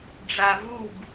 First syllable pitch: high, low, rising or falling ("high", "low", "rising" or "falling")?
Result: low